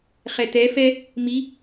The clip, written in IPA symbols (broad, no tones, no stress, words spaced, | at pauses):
χɛt̪ɛfɛ | mi